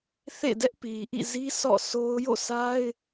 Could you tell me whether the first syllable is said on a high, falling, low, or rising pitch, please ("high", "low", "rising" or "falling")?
falling